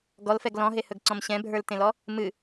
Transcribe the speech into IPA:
ɡɔlfɛɡ lɔ̃ɦehɵɡǀɔ̃m ɕɛ̃bʱə˞ltẽlɔ | mɨ

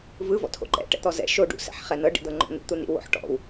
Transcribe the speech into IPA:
vɯ vɔ̰tʰo̰ǃɛ̰ ʈɛ̰t̪ɔzɛ̰ ʃo ɖṵ sɛ̰ħχɛnɤ ɖḭd̪ɤŋ͡ǃɔ̰nḭ t̪unḭ wo̰ħʈɔ̰w

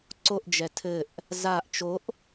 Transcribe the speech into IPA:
ǀoʔd͡ʒɛ tʰɘʔ | zaʔ t͡ʃoʔ

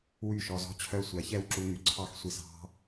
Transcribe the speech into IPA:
wy˦˨ʃɔ˧zɔ̤˦ t͡ɕʰœ˧sʷæ˨˦çɛ˧w ǁu˧ŋy˨ǀʰɑ˦xsʷi˧s ɑ̤˦

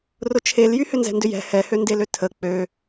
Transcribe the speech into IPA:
rʊt͡ʃʰeljy hʏnzɛ̤ndʏjɛ̤ hɛhøndelø tʰə k͡pø

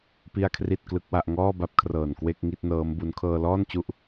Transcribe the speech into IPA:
pi˥˩a̯kʰri˥˩t̚klɯ˦˥k̚wa˥˩ʔ ŋɔː˥˩ba˦˥p̚kʰrɤː˨˩n kwe˥˩k̚ŋi˥˩t̚nɤː˦˥mbu˦˥n kʰɤː˧lɔː˥˩nt͡ɕu˦˥ʔ

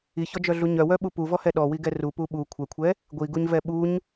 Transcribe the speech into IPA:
içɔd͡ʒœɮu ɲœwœɓu puvɔhɛ ɗɔwiɡɛ rupu ɓu kʷʰɛkʷʰɛ | ɡʷiɡuɲvɛ ɓuɲ

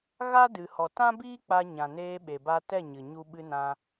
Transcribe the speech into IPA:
ɣa˦dɨ˨ hɔ˨tã˦biː˦ k͡pa˧ɲã˨neː˧ɓe˨ ba˧tɛ˦˨ɲɨ˨ ɲu˧ ɓɨ˧nã˧

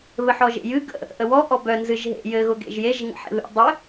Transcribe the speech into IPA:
βɘħɔʒḛjɨ ɡə̰ | ʔəwɔ ʔɔbœ nzɨʒɦḛ jɘ ɣʊɡḛʒjeʒ ŋə̰ħḛβḛ dˤɘ

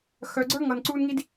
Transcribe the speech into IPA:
xœ˧ɡ͡ǀə˞˦ ŋʌː˧nǀuː˦nŋi˦d

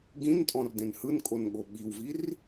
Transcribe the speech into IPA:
ɡĩntʼɔ̃rdẽn hɯnkʼonɠo ɓiwvir

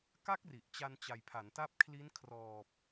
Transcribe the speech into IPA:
ka˦˥k̚ ri˨˩ʔ t͡ɕa˧nt͡ɕa˨˩jpʰa˩˦n ta˦˥p̚kʰli˦˥nkʰrɔː˨˩p̚

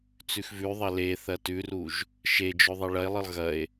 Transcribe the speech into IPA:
t͡sʉxvʉðˤɐ le θɐtʉruʒ | ʃed͡ʒɵ ðˤeɭɐe̯lˠɨlˠ ɣɐe̯

